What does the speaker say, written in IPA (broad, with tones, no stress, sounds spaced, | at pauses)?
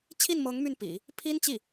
t͡ɕʰ i˥˩ n m ɤ˧˥ ŋ m y˥˩ n p ḭ˨˩˦ | pʰ i˥ n t͡ɕ i˥˩